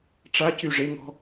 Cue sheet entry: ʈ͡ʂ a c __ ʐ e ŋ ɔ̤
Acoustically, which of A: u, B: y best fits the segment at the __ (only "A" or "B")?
B